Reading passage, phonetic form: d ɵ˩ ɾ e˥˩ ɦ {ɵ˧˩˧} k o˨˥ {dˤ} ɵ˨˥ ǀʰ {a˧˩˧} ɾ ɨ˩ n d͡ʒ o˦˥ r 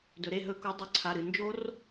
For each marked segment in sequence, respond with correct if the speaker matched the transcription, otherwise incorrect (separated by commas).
correct, correct, incorrect